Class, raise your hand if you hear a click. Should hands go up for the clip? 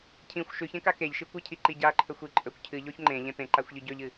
yes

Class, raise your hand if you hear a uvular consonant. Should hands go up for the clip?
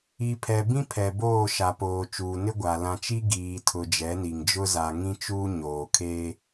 no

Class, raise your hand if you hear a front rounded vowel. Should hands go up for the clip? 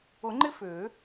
yes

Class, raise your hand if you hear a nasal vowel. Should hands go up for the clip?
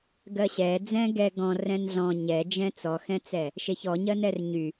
yes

